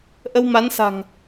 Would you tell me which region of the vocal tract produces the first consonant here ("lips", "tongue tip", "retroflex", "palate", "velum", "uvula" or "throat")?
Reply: throat